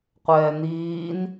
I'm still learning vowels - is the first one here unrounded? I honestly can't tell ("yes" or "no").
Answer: yes